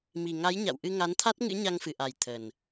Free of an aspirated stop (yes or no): no